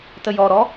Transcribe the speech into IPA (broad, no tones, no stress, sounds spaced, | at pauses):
t ə j ɔ ɾ ɔ